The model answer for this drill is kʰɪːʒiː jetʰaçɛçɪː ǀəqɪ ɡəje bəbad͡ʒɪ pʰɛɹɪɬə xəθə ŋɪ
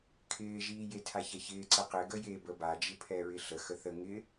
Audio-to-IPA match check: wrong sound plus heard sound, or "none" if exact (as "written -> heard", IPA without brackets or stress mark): none